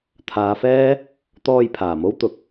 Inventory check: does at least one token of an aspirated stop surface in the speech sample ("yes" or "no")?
yes